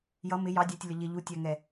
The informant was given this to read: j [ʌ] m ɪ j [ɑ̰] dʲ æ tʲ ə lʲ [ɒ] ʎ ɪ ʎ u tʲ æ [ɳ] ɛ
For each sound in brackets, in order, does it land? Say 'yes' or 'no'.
yes, no, yes, no

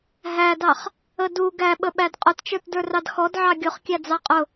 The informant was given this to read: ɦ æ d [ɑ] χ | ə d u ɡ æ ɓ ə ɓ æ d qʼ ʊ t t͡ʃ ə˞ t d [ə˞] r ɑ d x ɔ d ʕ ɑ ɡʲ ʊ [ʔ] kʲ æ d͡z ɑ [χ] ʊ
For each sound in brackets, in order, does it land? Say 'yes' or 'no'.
yes, yes, no, no

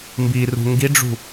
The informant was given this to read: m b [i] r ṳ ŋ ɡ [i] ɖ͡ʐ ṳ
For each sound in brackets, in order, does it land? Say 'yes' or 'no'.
yes, yes

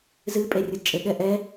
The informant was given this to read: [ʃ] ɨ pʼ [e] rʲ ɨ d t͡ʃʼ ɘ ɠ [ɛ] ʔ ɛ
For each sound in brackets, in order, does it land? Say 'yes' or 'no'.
no, yes, yes

